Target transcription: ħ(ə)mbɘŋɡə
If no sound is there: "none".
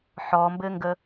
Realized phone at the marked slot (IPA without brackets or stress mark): ɔ